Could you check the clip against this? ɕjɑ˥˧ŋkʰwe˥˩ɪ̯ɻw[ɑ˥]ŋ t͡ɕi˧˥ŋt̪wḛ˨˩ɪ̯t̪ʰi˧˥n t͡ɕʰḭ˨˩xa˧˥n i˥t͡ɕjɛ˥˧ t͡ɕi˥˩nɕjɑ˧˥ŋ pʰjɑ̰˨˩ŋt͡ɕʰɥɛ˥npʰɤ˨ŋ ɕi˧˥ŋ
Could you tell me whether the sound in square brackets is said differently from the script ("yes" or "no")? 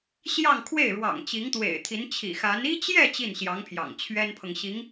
yes